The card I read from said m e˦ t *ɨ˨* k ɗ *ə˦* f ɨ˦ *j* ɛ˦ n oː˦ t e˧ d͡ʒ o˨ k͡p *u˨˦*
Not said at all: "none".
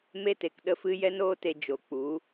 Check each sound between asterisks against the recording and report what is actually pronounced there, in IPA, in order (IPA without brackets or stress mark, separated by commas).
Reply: e˨, ə˦, j, u˨˦